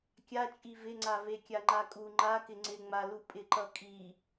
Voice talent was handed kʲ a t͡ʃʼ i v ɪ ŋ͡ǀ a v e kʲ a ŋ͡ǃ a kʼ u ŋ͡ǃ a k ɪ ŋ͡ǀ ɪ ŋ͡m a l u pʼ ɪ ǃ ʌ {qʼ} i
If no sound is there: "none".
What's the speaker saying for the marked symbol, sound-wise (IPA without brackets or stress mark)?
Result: kʼ